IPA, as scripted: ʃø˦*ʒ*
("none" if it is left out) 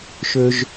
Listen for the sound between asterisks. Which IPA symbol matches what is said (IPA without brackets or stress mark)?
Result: ʒ